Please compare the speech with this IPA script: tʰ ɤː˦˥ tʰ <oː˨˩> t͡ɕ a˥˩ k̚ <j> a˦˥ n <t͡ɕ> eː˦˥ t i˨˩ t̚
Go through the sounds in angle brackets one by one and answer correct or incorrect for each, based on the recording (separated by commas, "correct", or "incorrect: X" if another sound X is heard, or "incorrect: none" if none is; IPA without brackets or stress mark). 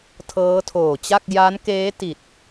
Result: correct, correct, incorrect: k